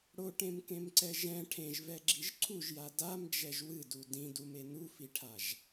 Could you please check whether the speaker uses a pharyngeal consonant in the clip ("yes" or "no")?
no